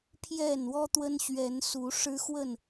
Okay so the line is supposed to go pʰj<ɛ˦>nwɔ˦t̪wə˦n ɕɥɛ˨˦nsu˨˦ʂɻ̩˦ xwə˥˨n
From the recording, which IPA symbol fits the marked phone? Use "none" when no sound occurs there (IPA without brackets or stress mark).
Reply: ɛ˥˨